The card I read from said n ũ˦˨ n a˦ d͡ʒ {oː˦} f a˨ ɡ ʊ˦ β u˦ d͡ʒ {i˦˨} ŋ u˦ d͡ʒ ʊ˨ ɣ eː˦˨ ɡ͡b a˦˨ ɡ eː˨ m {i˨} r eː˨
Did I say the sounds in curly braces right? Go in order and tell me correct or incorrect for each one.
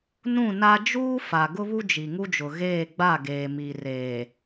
incorrect, incorrect, correct

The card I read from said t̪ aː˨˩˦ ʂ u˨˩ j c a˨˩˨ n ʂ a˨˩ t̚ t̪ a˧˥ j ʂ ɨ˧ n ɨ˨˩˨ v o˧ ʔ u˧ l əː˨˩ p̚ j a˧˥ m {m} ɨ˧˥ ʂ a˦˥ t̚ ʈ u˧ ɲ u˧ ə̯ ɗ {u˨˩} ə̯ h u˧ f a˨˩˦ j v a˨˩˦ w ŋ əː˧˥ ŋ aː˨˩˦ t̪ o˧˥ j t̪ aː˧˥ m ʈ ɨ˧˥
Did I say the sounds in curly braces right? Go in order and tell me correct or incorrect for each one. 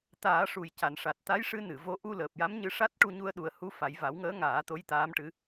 incorrect, correct

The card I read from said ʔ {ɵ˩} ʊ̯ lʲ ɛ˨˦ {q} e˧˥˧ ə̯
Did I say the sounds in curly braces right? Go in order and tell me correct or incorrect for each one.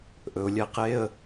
correct, correct

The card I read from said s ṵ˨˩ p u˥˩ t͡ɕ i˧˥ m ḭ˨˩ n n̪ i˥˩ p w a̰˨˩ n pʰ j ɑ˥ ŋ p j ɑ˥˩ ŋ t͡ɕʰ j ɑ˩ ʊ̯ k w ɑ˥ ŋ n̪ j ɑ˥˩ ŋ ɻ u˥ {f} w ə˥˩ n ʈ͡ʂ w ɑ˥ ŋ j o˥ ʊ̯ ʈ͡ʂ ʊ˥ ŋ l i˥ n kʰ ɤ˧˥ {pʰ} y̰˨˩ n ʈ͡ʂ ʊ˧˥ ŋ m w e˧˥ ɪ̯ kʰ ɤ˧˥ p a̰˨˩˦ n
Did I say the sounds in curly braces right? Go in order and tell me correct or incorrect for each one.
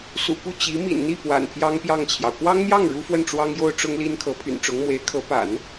correct, correct

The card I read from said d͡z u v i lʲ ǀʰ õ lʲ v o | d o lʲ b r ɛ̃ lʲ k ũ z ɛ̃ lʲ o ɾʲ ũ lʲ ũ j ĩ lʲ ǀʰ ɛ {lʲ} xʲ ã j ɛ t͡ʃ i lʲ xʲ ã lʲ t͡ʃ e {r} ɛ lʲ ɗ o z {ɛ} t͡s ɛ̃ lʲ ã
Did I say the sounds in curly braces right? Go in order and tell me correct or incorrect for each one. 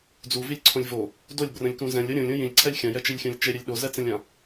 correct, incorrect, correct

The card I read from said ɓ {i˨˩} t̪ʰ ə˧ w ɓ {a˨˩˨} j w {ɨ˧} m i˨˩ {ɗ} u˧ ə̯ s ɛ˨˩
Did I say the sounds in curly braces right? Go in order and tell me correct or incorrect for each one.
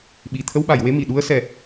correct, correct, incorrect, correct

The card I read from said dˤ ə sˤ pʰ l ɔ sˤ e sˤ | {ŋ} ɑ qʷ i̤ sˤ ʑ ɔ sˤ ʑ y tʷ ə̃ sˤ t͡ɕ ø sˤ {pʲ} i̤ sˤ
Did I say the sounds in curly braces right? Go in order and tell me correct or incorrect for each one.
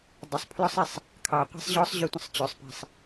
incorrect, incorrect

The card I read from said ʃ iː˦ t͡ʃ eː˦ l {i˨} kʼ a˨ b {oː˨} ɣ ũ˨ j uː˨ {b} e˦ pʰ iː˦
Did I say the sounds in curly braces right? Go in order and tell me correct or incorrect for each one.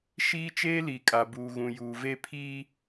correct, incorrect, incorrect

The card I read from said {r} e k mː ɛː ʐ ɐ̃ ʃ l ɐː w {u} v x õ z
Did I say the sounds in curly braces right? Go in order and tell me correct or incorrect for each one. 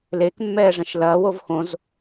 incorrect, incorrect

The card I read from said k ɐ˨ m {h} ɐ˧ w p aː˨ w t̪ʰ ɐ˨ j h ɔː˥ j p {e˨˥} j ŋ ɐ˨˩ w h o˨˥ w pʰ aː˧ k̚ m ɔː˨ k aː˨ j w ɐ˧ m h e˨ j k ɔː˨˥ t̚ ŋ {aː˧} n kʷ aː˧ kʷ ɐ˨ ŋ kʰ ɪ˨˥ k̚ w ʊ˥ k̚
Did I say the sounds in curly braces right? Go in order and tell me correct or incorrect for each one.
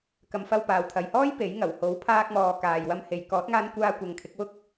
incorrect, correct, correct

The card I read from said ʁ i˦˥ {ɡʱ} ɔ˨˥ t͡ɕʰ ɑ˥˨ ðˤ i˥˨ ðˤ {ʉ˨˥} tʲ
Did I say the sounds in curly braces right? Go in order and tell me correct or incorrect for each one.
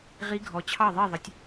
correct, incorrect

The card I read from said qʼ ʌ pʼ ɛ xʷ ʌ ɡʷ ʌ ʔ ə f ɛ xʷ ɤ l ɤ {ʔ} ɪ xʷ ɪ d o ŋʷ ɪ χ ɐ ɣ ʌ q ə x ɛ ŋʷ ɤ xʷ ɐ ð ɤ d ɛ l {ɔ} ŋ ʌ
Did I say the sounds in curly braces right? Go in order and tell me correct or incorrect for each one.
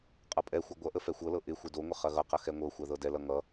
correct, incorrect

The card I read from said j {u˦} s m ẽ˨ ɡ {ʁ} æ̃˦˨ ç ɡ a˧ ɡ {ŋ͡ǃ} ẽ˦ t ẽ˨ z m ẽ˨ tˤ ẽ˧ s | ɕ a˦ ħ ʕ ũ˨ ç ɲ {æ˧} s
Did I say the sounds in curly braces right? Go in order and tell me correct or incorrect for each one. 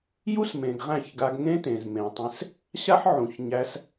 correct, correct, incorrect, correct

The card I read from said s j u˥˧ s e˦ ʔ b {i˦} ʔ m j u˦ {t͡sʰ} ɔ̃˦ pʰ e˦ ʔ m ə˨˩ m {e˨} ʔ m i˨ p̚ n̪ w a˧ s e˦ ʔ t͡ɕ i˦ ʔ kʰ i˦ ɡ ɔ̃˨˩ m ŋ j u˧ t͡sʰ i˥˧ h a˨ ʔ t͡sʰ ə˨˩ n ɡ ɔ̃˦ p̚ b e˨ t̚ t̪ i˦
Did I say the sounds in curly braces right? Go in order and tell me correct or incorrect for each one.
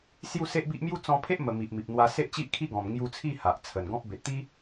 correct, incorrect, incorrect

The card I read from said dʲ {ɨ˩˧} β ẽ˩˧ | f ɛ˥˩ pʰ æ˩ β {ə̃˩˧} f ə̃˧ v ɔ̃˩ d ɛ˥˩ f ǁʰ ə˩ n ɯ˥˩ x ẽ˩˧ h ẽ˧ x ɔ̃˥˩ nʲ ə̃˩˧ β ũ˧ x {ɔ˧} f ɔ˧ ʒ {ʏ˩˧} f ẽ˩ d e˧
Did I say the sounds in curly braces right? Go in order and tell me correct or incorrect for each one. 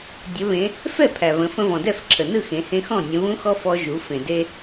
incorrect, correct, correct, incorrect

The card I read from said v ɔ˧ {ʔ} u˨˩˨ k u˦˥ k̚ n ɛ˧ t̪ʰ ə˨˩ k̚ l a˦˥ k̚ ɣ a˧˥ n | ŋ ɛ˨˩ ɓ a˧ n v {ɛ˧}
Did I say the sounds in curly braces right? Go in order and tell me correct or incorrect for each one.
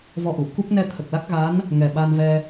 correct, correct

